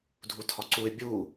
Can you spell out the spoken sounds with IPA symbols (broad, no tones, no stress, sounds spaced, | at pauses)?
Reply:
dʱ u tʰ ɒ ǀ u ɪ̯ bʲ u